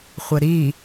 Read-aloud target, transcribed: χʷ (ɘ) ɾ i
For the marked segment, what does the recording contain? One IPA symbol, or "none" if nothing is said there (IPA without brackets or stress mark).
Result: ɘ